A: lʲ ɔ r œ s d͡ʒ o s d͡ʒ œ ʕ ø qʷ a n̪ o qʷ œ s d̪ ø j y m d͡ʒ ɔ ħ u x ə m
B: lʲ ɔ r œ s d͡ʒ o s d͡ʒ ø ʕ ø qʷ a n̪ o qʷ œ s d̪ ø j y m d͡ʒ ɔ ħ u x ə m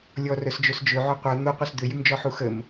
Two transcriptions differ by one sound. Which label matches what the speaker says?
B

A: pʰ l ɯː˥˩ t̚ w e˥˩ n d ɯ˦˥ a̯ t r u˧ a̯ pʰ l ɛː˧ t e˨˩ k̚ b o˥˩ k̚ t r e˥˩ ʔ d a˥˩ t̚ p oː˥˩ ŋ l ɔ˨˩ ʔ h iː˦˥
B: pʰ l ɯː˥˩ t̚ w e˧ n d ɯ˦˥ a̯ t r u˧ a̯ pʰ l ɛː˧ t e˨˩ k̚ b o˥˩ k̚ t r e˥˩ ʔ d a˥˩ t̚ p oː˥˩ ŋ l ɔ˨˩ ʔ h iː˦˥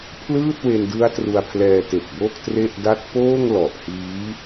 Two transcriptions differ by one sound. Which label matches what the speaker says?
B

